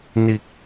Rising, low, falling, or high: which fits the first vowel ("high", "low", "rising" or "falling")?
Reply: low